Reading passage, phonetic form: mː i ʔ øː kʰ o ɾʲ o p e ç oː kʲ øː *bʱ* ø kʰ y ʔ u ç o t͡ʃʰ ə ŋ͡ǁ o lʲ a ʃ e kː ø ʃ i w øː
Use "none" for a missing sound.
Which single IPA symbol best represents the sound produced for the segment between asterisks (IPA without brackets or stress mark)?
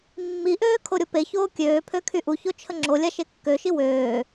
pʰ